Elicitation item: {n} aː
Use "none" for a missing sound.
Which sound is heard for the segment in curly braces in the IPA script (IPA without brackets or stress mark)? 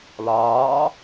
l